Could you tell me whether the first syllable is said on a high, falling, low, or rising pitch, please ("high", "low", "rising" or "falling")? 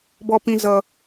high